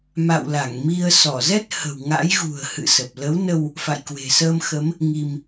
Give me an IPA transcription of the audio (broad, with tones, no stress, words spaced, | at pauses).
ma̰˧˨wla˧˩ŋmi˧ə̯ sɔ˧˩zɛ˦˥t̚ hə̤˨˩wŋa̰˧˥j ɣṳ˨˩ə̯hɨ̰˧˨ sə˨˩p̚ lə˨˦wnə˧w | fa̰˧˨jkwe̤˨˩ səː˧mxə˨˦m | ŋi˧m